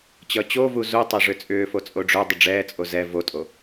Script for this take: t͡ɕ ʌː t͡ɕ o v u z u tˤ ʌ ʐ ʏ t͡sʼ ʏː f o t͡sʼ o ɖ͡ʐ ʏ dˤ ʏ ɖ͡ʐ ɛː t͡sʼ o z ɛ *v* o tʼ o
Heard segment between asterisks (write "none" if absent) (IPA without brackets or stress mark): v